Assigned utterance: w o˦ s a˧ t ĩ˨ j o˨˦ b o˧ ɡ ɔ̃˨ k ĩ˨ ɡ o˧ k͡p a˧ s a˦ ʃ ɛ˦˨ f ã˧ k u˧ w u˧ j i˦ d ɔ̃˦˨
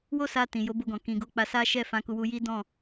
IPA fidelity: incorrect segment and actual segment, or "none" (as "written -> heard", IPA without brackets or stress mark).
none